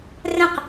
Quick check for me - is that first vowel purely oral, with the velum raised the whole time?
no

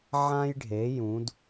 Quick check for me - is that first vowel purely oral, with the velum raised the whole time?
no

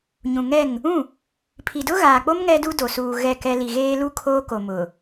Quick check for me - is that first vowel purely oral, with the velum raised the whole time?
no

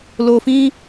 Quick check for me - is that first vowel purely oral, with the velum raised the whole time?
yes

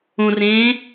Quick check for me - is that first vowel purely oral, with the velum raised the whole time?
no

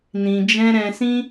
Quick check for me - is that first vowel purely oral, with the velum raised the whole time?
no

